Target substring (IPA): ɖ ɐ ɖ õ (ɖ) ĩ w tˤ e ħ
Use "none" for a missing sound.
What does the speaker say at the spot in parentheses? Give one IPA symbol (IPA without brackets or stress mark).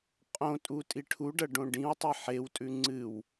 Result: ɖ